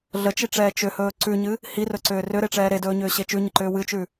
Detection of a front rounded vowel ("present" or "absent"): present